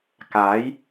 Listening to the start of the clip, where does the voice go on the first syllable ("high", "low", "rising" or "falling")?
rising